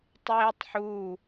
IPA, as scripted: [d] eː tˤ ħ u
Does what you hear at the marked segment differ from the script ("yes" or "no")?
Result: yes